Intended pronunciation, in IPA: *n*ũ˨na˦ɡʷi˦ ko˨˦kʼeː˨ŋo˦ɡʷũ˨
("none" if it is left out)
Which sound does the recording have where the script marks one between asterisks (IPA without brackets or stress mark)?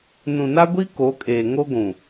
n